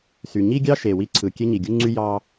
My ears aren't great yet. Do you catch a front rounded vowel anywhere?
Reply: yes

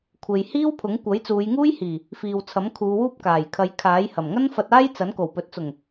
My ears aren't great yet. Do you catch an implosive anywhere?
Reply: no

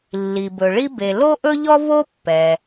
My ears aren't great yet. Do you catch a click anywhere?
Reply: no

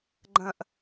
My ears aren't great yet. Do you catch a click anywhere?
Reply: yes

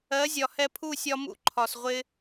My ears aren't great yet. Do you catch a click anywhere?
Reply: yes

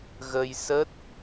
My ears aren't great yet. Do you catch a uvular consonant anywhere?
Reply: no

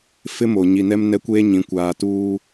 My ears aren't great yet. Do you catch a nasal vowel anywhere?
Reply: yes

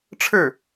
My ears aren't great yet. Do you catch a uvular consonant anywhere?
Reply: no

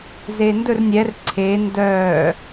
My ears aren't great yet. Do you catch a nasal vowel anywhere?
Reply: no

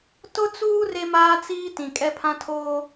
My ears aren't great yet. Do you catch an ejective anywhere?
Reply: yes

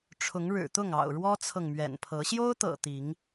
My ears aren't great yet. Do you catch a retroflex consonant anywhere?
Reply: yes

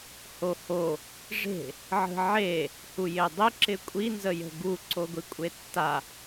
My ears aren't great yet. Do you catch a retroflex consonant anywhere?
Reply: yes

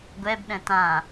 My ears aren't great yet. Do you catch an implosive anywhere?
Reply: yes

